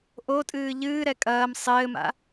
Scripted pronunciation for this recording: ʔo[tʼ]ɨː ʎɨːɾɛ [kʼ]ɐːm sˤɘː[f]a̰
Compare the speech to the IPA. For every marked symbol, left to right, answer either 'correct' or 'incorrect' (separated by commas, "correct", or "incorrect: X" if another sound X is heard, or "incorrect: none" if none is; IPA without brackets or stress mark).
correct, correct, incorrect: m